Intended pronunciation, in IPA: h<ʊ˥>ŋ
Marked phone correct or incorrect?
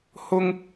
correct